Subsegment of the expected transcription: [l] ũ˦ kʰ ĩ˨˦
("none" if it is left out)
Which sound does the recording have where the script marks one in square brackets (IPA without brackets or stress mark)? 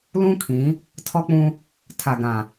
l